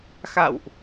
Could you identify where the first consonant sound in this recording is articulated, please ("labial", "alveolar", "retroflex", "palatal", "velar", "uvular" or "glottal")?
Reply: velar